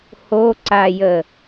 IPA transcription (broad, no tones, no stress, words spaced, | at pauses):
hoǀajə